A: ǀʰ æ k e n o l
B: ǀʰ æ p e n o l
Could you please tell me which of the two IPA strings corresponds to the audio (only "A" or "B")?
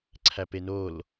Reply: B